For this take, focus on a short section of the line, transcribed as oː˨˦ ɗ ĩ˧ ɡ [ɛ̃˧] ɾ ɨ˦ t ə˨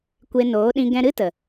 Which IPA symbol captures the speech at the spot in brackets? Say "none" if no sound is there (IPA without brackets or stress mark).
ɛ̃˧